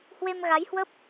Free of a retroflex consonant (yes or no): yes